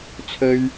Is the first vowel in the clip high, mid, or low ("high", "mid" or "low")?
mid